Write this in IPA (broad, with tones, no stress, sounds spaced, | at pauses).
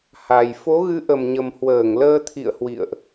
h a˨˩ j f o˨˦ ɣ ɨ˨˦ ʔ ə˨˩ m ɲ ə˨˩ m h w əː˧˩ ŋ l əː˧ t̪ʰ ḭ˧˨ ə̯ h w ḭ˧˨ ə̯ ʔ